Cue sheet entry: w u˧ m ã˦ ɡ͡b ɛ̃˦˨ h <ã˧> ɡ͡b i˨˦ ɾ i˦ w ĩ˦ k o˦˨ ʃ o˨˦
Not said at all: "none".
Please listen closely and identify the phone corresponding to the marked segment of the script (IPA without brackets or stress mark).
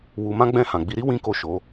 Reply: ã˨